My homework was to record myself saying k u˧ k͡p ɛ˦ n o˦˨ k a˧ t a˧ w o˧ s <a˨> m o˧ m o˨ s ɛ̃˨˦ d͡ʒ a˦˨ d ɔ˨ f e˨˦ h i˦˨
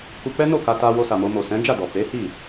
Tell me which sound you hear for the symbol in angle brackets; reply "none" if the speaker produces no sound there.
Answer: a˨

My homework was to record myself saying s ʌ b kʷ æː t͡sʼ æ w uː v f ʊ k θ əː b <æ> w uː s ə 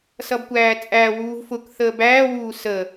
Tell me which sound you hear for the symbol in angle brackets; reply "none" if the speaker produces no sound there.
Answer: æː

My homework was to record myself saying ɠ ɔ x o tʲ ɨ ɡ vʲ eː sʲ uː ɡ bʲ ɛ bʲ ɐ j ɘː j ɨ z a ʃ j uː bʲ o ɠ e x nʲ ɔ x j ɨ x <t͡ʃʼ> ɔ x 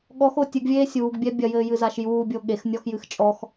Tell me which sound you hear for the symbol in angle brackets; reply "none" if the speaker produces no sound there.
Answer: t͡ʃʼ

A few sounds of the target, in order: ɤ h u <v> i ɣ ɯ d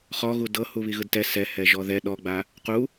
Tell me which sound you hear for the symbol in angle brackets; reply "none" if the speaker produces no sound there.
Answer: β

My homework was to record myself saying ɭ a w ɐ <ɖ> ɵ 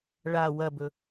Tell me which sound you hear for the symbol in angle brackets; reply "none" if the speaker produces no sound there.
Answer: b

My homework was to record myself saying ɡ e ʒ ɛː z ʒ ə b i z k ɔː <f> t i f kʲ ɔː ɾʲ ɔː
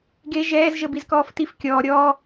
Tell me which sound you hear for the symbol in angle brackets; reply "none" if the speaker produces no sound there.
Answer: f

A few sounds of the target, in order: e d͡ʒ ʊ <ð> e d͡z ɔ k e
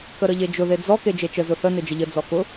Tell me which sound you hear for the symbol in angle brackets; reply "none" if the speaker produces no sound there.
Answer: ð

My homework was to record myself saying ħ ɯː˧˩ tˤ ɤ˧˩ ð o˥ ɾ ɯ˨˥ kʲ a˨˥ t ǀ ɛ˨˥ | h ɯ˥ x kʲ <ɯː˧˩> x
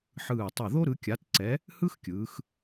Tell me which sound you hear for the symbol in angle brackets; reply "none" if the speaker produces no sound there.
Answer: ɯː˩˧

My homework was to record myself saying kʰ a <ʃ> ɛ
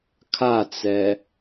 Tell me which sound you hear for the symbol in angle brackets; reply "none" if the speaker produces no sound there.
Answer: t͡s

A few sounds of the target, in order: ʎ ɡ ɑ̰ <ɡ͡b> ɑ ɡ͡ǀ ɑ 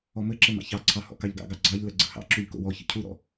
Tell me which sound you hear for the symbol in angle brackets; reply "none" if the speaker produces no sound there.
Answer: ɡ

